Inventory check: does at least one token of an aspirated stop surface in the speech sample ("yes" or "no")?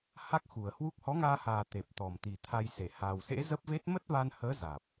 yes